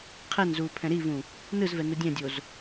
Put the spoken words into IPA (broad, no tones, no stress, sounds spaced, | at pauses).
qʰ ɛ n z uː pʰ ɛ̃ ɾ i v ũ | n ɯ z v ɛ n u dʲ ɛ̃ dʲ o z